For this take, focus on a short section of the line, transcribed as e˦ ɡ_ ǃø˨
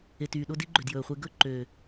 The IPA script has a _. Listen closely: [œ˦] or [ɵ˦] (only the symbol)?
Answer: ɵ˦